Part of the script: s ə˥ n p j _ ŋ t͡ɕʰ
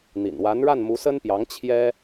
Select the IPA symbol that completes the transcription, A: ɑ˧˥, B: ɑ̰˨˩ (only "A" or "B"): A